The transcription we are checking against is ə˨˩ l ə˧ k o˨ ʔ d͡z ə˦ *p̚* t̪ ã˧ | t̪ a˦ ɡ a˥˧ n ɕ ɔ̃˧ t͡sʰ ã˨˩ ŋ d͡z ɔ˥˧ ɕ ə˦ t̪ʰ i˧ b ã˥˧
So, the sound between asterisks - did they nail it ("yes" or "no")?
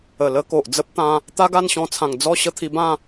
yes